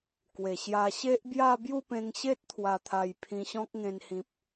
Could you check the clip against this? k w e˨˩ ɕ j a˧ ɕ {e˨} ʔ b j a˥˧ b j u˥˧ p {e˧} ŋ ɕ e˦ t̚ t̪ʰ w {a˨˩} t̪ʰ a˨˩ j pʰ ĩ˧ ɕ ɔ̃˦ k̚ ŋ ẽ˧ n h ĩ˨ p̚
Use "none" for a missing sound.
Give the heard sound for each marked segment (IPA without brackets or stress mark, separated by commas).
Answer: e˦, ẽ˧, a˨˩